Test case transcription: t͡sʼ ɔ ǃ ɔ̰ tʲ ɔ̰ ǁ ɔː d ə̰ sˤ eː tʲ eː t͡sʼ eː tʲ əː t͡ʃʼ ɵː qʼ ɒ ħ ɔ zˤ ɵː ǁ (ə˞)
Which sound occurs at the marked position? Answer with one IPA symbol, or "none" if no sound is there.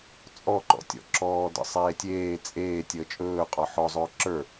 ə˞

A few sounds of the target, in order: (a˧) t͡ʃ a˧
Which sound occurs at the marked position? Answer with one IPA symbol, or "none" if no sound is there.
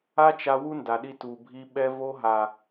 a˦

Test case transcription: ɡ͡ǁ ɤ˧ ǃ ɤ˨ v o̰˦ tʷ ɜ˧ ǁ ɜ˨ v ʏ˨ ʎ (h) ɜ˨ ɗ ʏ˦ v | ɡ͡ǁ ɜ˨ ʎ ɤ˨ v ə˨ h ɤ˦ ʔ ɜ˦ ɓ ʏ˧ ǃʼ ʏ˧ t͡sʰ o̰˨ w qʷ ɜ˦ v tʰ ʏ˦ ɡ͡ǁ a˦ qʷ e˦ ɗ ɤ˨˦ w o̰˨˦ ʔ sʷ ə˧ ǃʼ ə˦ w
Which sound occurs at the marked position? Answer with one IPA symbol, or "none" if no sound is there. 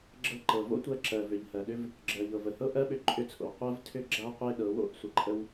h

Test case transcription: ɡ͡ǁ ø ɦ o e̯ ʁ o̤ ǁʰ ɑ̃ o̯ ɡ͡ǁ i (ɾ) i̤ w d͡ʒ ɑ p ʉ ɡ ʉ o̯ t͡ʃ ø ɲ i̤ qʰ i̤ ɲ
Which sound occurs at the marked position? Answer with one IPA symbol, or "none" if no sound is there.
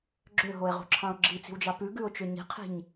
t͡s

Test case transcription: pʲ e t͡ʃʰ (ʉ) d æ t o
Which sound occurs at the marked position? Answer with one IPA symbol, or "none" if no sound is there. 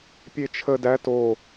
ə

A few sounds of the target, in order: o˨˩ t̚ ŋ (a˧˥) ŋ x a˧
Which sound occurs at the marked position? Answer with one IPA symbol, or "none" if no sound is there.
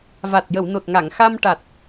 a˨˩˨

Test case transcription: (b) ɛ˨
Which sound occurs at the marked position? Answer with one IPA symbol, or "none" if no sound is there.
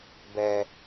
b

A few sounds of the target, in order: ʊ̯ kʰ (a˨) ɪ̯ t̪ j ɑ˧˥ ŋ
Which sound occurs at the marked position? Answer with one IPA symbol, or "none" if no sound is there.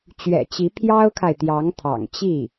a˨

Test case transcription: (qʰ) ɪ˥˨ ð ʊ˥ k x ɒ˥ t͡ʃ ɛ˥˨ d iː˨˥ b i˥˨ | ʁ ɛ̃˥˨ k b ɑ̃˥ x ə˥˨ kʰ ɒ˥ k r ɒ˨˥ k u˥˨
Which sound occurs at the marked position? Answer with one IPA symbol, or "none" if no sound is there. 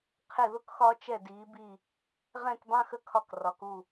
qʰ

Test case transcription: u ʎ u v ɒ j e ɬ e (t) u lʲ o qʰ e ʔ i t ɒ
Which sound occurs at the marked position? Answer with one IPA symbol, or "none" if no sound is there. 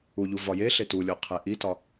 t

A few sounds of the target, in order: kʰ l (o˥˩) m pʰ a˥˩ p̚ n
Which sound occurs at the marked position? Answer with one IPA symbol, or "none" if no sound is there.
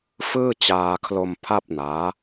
o˧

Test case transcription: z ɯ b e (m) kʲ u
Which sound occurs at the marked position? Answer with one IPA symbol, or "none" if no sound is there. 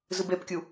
p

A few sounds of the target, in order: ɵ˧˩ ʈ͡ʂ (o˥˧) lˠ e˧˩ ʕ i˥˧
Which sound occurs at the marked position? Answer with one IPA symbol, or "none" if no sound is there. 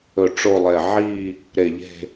o˥˧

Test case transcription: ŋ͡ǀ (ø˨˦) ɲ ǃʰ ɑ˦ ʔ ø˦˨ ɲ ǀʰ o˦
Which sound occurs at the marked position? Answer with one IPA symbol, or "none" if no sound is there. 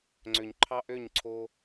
ø˨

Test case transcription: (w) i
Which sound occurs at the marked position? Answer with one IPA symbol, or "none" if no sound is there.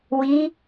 w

